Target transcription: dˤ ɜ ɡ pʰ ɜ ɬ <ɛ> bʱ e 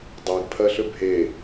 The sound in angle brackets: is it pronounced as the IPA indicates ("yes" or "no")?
no